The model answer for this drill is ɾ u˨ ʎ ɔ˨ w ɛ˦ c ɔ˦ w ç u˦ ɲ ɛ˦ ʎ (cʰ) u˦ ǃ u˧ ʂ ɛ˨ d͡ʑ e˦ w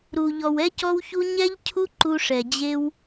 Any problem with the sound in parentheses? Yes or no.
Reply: no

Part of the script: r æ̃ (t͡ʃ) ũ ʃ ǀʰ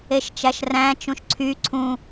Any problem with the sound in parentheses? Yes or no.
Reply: no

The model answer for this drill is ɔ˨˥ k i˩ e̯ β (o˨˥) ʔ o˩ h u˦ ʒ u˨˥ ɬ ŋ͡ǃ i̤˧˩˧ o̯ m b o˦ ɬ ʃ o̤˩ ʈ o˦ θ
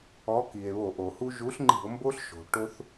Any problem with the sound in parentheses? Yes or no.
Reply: yes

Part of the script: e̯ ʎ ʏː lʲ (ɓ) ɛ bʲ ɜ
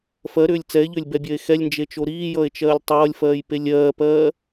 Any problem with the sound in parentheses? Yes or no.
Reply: yes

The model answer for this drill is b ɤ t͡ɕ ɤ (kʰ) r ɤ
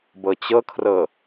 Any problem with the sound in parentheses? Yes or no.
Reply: no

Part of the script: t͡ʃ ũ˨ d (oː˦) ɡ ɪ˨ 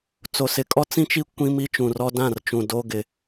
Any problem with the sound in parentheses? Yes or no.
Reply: no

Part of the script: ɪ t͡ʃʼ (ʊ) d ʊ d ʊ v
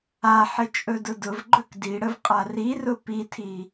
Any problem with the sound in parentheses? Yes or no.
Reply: yes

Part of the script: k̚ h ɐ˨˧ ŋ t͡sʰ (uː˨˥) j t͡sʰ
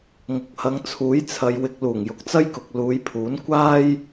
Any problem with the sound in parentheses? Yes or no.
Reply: no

